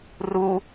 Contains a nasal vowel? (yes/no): no